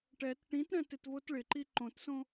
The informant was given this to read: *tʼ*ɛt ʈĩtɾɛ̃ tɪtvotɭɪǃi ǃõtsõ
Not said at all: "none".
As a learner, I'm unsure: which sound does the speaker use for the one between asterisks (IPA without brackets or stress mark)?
ʈ